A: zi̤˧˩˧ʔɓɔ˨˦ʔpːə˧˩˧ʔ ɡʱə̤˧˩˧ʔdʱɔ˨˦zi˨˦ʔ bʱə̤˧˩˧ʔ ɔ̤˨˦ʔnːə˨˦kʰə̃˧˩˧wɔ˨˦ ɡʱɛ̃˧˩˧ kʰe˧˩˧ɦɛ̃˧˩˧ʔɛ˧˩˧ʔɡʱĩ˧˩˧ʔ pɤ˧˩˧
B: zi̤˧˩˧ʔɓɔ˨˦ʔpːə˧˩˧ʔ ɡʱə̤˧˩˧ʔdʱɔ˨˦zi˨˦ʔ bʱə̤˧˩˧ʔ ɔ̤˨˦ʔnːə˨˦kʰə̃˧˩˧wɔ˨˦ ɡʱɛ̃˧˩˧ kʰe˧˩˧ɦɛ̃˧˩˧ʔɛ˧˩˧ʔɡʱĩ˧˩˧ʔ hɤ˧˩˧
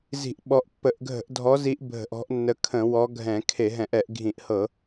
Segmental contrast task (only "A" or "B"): B